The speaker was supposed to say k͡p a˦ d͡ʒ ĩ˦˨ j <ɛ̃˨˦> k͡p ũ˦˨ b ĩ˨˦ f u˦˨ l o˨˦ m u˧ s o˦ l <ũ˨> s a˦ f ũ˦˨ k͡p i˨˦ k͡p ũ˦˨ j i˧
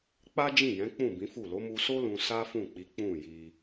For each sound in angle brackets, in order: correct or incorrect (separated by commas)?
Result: correct, incorrect